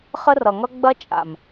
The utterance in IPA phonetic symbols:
χ ə˦ r ʌ˨ ŋ ʌ˦ ɡ͡b ɐ˦ t͡ʃʼ a̰˨ m

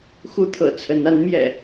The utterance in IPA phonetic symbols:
x u˦ t̪ʰ ɤ̰˨˩ t͡sʰ ə˨˦ n a˨˦ n m j ɛ̰˨˩

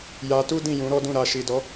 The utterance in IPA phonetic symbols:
j a˧ t u˦ d ĩ˦˨ j ũ˨˦ ɾ ɔ˦ d ũ˦˨ ɾ a˧ ʃ i˨ d ɔ˨˦

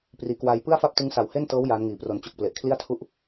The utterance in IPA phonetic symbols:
p r iː˩˦ k w aː˧ j p ɯ˥˩ a̯ f a˥˩ p̚ t ɯ˦˥ ŋ s a˨˩ w h e˥˩ n t ɤː˦˥ w j aː˦˥ n ŋ iː˨˩ p r o˧ n t͡ɕ u˨˩ k̚ p l e˨˩ ʔ kʰ l i˥˩ a̯ tʰ u˥˩ ʔ

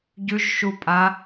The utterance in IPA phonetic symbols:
ɟ ʉ ʒ ʃ u pʼ a

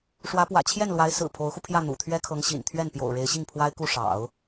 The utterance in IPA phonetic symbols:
ʂ w ä˧˥ p w ä̰˨˩ t͡ɕʰ j ɛ˥˩ n l w a˧˥ ɪ̯ s ɹ̩˨˩ pʰ o˧˥ ʊ̯ x u˧ pʰ j ä˥˩ n̪ ṵ˨˩ t̪ʰ ɥ ɛ˥ kʰ ɤ˧˥ ŋ ɕ ḭ˨˩ n t̪ʰ ɥ ɛ˥˩ n p j o̰˨˩ ʊ̯ ɻ e˧˥ ɪ̯ ɕ i˥˩ ŋ pʰ w a˥ ɪ̯ k u˥˩ ʂ ɑ̰˨˩˦ ʊ̯

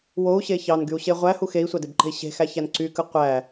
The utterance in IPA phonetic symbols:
w o u̯ ɕ e ç ɑ n ɡ y u̯ ɕ e ʁʷ æ h u x e i̯ sʷ ɑ d e b ǃ e̤ i̯ ɕ e̤ x æ ç æ n ǀ y k ɯ qʷ æ

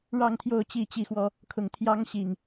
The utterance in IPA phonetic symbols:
ɻ ɑ˥˨ ŋ t̪ʰ j o˥˨ ʊ̯ t͡ɕ i˥˨ t͡ɕ i˥˨ x w ɔ˦ | kʰ ʊ˨˩ ŋ t̪ʰ j ɑ˦ ŋ ɕ i˨˩ ŋ

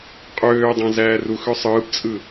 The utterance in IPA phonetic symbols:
qʼ øː dˤ æ̃ z æː r u x ø sˤ ɯː p t͡sʼ ɯ

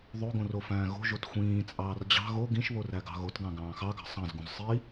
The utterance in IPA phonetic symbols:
ðˤ o ɡ õ r o f æ̃ː ɣ o̤ ʒ o t xʷ ĩː t͡sʼ ɑː r d͡ʑ ɑ̤ ɣ o ɡ ĩ ʃ β o r æ ɡ ɑ̤ ɣ o t ɡ ɑ̃ ɡ ɑ̃ː x ɑ ɡ ɑ̤ sˤ ɑ̃ z ɡ ũ z sˤ i

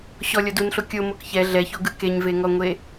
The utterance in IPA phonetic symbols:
ɕ ɔ lʲ ɔ d u n ɬ o kʲ o m o k ç ɛ ɮ ɛ ç o ɡ ɯ k e ɲ v e ŋ ɔ ŋʷ e

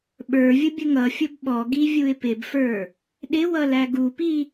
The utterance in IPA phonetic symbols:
ɓ ə˞ vʲ ʊ bʲ ə ŋ ʌ fʲ ʊ b ɓ ɔ ɡ i vʲ u ɪ̯ p ɪ b f ə˞ | ɗ ɪ w ʌ l æ ɡ u p i

